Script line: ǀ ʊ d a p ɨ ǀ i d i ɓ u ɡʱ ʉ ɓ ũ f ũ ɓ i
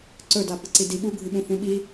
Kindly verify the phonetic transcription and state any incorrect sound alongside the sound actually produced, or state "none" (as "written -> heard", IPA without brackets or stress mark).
ʊ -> ɵ